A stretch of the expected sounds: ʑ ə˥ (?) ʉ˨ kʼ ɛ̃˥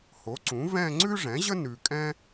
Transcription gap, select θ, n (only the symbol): n